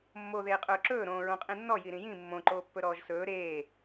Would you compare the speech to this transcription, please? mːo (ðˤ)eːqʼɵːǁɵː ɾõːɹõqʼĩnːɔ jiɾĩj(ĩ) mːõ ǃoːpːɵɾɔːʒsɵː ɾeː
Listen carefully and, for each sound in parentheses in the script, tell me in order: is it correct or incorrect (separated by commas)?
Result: incorrect, correct